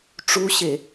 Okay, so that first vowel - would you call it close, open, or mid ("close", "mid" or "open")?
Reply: close